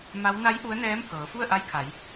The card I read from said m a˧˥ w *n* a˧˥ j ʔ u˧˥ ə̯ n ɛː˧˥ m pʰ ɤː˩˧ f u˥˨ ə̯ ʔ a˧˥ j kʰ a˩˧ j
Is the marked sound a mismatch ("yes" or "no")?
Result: no